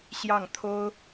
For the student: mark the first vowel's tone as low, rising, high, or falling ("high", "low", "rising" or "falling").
falling